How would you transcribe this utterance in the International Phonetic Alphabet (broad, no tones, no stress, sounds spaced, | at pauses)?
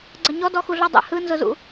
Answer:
ɡ͡ǀ ɐ ɲ ɔ d ɔ x u ɮ ɔ dˤ ɛ̰ h ɯ n z ʊ z ṵ